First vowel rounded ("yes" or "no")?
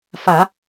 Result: no